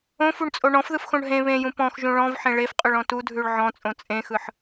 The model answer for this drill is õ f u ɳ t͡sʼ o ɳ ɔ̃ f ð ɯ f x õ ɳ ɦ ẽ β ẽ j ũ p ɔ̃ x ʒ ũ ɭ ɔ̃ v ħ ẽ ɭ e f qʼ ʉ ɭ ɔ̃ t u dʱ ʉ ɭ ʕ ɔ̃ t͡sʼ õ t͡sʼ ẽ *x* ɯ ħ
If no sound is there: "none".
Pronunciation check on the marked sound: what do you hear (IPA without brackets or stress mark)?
x